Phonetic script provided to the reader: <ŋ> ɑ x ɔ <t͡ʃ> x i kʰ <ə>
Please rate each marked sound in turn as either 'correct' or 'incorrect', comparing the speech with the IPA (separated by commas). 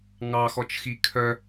correct, correct, incorrect